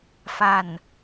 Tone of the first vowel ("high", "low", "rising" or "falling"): falling